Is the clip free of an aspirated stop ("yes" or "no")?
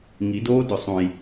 yes